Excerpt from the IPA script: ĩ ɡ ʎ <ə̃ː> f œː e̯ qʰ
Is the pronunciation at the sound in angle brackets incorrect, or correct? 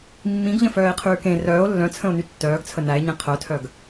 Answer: incorrect